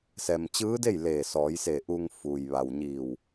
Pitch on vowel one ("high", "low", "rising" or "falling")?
low